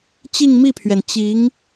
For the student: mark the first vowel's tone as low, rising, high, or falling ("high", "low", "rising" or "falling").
falling